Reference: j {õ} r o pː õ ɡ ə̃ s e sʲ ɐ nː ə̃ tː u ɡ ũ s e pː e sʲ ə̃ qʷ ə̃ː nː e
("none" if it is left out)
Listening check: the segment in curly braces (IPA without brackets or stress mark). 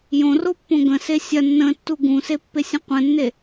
õ